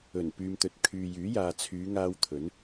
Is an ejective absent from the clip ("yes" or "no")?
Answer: yes